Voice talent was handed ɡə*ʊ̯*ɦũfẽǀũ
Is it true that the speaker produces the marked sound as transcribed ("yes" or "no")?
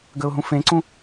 yes